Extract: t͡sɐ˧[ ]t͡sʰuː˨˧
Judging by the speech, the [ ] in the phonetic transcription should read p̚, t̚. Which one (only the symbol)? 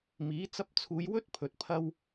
p̚